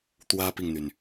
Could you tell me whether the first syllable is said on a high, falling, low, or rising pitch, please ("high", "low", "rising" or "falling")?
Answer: high